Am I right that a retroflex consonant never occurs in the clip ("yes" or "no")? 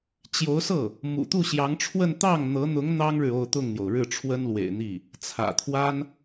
no